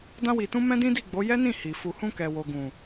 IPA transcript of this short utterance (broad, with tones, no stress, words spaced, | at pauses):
dã˧wi˨tũ˧ mɛ̃˦dĩ˦di˦˨ɡ͡bo˨˦ jɛ˦nĩ˦˨ hi˨ fu˨hũ˧kɛ˨ wo˨ɡũ˨